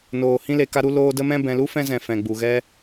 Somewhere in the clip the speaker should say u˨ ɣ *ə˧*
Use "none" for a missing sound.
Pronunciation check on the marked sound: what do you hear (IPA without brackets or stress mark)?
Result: ɛ˧